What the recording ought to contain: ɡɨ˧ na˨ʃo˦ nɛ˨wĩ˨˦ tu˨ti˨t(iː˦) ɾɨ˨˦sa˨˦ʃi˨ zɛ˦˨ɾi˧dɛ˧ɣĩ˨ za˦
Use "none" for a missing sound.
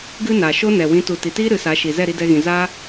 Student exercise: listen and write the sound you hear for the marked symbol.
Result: iː˦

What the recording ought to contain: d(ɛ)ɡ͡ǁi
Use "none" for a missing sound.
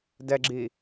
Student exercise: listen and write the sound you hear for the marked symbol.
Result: ɛ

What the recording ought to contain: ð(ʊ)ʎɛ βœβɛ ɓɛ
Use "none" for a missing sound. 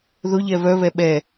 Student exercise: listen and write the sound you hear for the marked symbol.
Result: ʊ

